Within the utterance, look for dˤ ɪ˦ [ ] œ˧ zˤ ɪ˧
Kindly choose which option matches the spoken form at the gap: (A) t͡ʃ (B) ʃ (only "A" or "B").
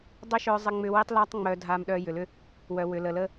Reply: B